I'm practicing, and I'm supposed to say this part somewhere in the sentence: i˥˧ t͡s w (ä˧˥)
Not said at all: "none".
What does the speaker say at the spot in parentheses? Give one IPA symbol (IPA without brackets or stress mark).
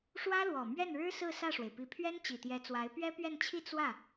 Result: ä˥˩